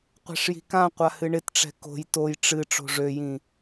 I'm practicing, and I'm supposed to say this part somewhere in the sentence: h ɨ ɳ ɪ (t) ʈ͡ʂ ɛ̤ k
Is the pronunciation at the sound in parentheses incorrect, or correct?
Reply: correct